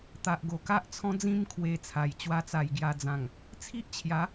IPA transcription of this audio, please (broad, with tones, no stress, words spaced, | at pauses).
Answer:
t̪a˨ʔɡo˨˩ka˦ʔt͡sʰɔ̃˦ d͡zĩ˧mkʰwe˨˩ t͡sʰa˨˩j t͡ɕwa˧t͡sa˨˩j ɡja˧d͡zã˨˩ŋ | t͡sʰi˦ʔt͡ɕʰja˨˦